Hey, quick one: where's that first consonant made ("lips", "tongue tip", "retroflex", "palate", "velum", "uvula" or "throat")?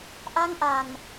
throat